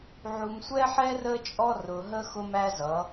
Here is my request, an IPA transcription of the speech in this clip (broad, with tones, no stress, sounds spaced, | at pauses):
ʕ u˨ m sʷ ɛ˦ ħ ɛ˦ r ə˦ t͡ʃʼ ɔ˦ r ʊ˨ ɦ ə˦ x ʊ˦ m æ˦ z ʌ˨˦